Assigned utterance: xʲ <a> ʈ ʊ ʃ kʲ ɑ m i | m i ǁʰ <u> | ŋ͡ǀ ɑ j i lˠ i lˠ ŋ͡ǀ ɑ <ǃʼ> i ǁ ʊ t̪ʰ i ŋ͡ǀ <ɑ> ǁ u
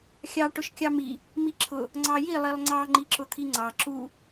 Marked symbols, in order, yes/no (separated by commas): no, no, no, yes